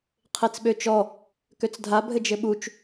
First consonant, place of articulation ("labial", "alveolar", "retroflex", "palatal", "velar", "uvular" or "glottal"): uvular